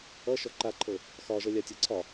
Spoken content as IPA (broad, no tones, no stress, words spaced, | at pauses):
ʌ ʃɔǃaǃʰɤ | xɒʒʌlʲatʲɤ ǀʰɒ